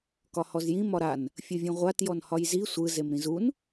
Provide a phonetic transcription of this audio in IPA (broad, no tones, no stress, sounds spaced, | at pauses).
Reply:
k ɒ h ɔ z j ĩ m ɒ ɾ a n | fʲ ɯ vʲ ũ ʁʷ a t j ɔ n h ɒ j z i sʷ ɯ z e m ɾ ĩ z u n